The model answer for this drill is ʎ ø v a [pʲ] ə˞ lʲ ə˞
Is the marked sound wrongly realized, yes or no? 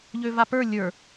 yes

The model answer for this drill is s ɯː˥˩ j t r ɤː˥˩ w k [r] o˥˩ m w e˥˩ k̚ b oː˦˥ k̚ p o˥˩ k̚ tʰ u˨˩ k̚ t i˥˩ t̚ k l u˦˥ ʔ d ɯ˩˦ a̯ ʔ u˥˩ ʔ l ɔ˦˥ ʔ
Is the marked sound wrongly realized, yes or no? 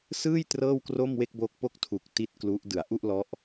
no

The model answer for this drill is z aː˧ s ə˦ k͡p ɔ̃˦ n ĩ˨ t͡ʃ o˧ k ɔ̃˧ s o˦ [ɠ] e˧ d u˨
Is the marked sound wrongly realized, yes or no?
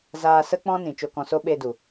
yes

